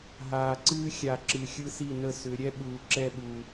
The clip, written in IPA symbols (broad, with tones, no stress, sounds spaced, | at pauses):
ɦ aː˨ ǀ ɨː˦ xʲ a˨ ǁ ɨ˨ xʲ ɯ˦ s i˦˨ n ə˦˨ s ʏ˨˦ ɾʲ ɛ˦ ɓ uː˨ ǁ ɛ˦˨ ɓ u˨